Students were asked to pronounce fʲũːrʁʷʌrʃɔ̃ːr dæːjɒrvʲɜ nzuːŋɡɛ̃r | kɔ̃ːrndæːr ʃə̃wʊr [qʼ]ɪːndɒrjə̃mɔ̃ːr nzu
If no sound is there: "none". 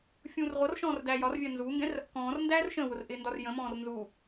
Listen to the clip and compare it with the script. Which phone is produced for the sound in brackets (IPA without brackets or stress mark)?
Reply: ʔ